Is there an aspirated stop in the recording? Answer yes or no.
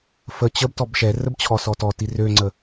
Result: yes